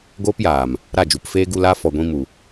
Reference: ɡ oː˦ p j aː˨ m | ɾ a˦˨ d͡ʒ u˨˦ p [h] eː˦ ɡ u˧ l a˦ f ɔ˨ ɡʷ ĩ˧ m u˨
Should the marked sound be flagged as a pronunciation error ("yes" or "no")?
yes